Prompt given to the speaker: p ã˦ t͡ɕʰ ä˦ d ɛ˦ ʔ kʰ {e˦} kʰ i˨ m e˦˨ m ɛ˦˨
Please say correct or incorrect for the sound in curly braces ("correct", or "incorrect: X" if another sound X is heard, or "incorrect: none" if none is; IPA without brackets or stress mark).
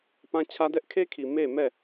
correct